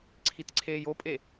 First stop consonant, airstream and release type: click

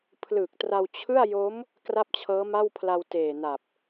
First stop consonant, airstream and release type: aspirated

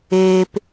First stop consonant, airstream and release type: plain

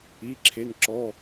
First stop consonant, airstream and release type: click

